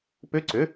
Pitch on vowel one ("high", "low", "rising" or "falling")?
rising